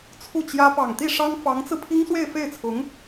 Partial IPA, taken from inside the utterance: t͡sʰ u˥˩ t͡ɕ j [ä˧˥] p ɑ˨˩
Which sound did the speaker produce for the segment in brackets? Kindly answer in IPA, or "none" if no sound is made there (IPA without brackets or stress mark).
ä˥